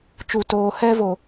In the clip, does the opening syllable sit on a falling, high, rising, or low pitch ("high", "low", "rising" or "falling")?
low